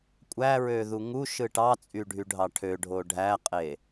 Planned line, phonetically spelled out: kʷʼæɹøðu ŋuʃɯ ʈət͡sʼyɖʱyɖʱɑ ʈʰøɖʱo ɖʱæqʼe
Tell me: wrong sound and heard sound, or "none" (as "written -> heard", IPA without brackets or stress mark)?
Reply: ə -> ɑ